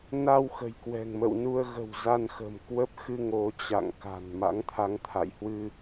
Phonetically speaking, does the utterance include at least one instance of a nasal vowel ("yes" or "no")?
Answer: no